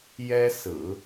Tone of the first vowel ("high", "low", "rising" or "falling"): high